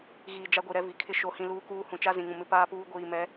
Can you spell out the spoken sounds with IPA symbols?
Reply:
ɣ iː˨ d͡ʒ a˦ ɡʷ i˨ ɾ ɛ˦ v i˨ kʰ ɪ˦ ʃ o˨ h ĩ˨ l uː˦ k uː˦ h ũ˨ t͡ʃ a˦ z ĩ˨ ŋ ũ˨ m ɪ˦ p aː˦ p uː˦ ɡʷ iː˨ m ɛ˨˦

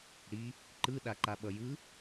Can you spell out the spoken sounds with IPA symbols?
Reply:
ɽ i | ǃ ɯ ɗ a ǃ a ɓ ʌ j ɯ

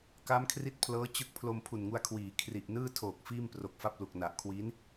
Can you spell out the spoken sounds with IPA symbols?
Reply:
k a˦˥ m kʰ r i˦˥ t̚ pʰ l ɤː˦˥ t͡ɕ ɯ˦˥ k̚ pʰ l o˧ m pʰ u˨˩ n ŋ u˧ a̯ kʰ w iː˩˦ kʰ r i˨˩ ʔ n ɯː˥˩ tʰ oː˨˩ k̚ f iː˥˩ m p r o˨˩ k̚ f a˥˩ p̚ l u˨˩ k̚ n a˨˩ ʔ kʰ w i˦˥ n

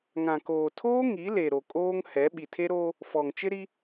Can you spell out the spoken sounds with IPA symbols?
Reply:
ŋ ã˨ k oː˨ tʰ oː˦ ŋ i˨˦ l e˨ ɾ o˨ kʼ oː˦ ŋ h ɛ˨˦ ɓ i˨ tʰ e˦ ɾ oː˦ | f ɔ˨ ŋ t͡ʃ ɪ˦ ɾ i˦

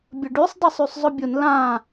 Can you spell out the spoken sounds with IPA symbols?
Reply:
bʲ ə ɖ y sˤ dˤ ɪ sˤ y sˤ zˤ ʊ bʲ ʊ n l ã

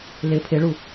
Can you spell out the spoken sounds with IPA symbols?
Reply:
l ɪ pʰ ɪ ɭ u

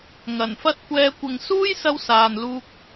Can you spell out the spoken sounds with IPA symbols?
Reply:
ŋ ɐ˨˩ n f ɐ˧ t̚ kʷ ɛː˨˧ kʷ ɪ˨ ŋ s uː˥ j s ɐ˧ w s aː˨ n l uː˧ k̚

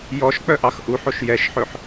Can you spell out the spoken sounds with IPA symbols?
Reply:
j ɔ ʃ k͡p œ ʔ ɑ x ʔ u ħ o ʃ j ɛ ʃ ħ ɵ ħ

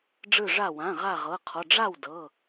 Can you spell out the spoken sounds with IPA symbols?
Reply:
ɖ͡ʐ ɯ˧˩ ʐ a˧˩ w ã˩˧˩ ʁ a˧˩ ʁ ɤ˩˧˩ qʰ ɔ˩˧˩ ɖ͡ʐ a˥˩ w d ɤ˩˧˩

